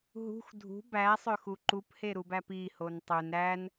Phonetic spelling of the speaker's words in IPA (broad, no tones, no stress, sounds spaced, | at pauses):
ɦ ṳ x dʱ ṳ b æ sˤ ø x u ǃ u p h e ɾ u b æ p i h o n tˤ ø n ɾ æ n